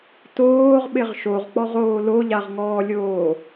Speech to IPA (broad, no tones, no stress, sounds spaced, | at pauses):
t oː ʁ ɓ ɪ ʁ ʃ o ʁ k͡p ɔ ʁ oː l o ʎ a ʁ ŋ ɔː lʲ oː